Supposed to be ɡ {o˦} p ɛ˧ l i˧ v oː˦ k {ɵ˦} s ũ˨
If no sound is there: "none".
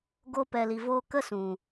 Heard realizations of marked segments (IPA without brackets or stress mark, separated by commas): o˦, ə˦